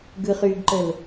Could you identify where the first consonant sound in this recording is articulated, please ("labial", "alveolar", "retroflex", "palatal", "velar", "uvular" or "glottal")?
velar